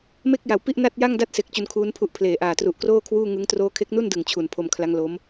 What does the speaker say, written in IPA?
me˥˩k̚ja˩˦wpi˥˩ʔ na˥˩t̚ ja˥˩ŋda˥˩t̚se˨˩k̚ t͡ɕu˧nkʰuː˦˥npʰu˦˥ʔpʰleː˨˩ ʔaː˨˩tru˨˩ʔkroː˥˩ kʰwuː˥˩ŋɯ˦˥ŋ troː˦˥kʰe˦˥k̚nu˥˩ndɯ˨˩ŋ t͡ɕʰu˨˩npʰo˧mkʰla˦˥ŋlo˦˥m

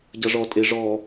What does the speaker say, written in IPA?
ɟʌ ʐɔ tʼe ʐɔ

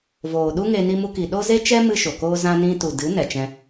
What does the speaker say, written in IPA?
voː˨ɗu˦ŋe˧ ni˧mu˧ki˨ɗo˦ ze˦t͡ʃɛ˦ mɨ˦ʃo˨koː˦ zã˧nĩ˧tu˨ dɨ˨˦ nɛ˨t͡ʃɛ̃˧

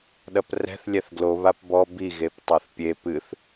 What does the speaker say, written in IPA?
ɗɐprɛ̤θ lʲɛθɡlo βapbɔ bi ɣeptˤaθpʲe pɨθ

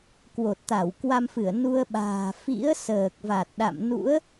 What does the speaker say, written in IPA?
kwo˨˩t̚t̪a˧˩w kwa˧mfɨ˧˩ə̯ nu˧ə̯ɓa̤ː˨˩ fḭ˧˥ə̯ səː˨˩k̚va˨˩t̚ɗa̰˧˨m nṵ˧˥ə̯

